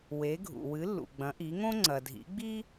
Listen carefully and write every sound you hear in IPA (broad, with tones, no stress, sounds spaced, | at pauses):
w e˩˥ ɡʱ ṵ˩ w ɨ˩˥ lː ṵ˩ ɡ͡b ɐ̃˩˥ ʔ i˩˥ ŋ õ˥ ŋ͡ǀ ɐ˩ dʱ ḭ˩˥ ɡ͡b i˥